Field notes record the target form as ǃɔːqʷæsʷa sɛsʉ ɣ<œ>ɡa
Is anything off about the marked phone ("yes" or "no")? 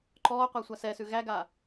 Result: yes